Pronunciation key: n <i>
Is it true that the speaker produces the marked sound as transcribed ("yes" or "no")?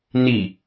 yes